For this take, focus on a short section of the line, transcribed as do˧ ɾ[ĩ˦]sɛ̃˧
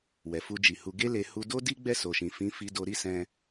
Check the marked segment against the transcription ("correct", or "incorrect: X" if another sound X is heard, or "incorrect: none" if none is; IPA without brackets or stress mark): incorrect: i˦